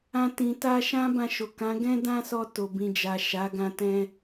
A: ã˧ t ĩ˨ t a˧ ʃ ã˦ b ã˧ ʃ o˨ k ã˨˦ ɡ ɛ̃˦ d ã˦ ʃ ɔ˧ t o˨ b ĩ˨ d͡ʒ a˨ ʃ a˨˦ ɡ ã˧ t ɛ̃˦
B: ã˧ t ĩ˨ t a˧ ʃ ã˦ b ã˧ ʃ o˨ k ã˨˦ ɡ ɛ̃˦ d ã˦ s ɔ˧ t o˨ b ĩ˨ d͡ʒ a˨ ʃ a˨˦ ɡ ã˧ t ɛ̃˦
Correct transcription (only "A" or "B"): B